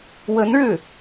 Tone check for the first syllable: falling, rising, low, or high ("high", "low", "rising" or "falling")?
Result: rising